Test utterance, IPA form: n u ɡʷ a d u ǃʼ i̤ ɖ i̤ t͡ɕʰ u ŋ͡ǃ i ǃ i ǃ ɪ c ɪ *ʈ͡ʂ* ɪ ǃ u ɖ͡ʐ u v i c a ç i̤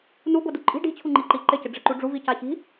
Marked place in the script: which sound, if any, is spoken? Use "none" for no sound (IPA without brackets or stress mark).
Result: ɖ͡ʐ